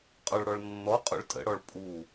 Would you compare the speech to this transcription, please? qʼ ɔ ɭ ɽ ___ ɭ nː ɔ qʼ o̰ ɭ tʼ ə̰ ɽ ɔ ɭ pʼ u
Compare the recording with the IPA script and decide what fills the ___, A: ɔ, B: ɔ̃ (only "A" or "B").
A